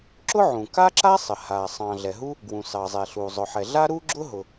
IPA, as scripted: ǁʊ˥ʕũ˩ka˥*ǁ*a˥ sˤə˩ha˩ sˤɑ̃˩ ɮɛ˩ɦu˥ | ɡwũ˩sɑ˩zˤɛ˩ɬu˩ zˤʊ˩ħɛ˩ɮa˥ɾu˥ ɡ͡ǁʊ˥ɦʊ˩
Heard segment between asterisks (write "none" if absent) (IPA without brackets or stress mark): ǁ